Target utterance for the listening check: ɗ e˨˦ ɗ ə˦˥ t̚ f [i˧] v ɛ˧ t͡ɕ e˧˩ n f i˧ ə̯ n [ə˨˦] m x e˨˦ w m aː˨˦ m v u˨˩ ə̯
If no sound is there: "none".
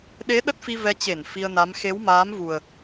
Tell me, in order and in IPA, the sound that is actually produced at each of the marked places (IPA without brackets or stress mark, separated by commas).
i˧, a˨˦